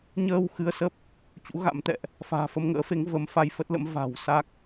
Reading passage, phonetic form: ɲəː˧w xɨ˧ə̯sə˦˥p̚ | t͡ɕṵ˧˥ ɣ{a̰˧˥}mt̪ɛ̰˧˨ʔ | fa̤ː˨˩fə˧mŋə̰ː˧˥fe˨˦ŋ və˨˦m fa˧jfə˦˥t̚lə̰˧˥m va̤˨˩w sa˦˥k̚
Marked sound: correct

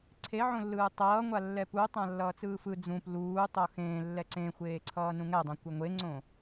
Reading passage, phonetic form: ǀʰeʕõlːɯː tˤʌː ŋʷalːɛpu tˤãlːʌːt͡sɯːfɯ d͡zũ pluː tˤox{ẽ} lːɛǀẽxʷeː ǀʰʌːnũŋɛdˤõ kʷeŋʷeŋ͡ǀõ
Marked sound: incorrect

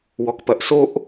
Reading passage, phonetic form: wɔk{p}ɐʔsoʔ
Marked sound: correct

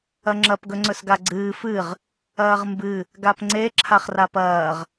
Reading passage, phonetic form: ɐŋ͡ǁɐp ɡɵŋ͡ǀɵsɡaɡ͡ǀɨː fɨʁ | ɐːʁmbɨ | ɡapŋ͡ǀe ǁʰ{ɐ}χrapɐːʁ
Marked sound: incorrect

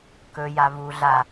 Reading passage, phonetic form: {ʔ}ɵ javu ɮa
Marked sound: incorrect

